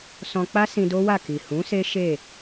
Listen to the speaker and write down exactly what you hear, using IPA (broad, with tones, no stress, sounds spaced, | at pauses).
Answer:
s ɔ̃˧ k͡p a˦ s ĩ˧ d o˦ w a˦˨ k i˨ h ũ˨˦ s e˦ ʃ e˦˨